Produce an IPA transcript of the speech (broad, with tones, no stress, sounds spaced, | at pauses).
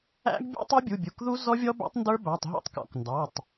æ̰˦˥ ɡ bʲ ɛ̰˦˥ tˤ u˦˥ bʲ u˩˧˩ bʲ u˩˧˩ k ð u˦˥ z ɔ˦˥ vʲ ɔ˦˥ b æ̰˦˥ tˤ n d ə˞˦˥ b æ˩˧˩ tˤ ɦ ɔ̰˦˥ tˤ k ɔ̰˩˧˩ k n d ɑ˩˧˩ tˤ